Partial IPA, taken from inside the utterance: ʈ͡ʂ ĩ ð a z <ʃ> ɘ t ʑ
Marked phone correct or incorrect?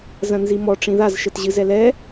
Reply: correct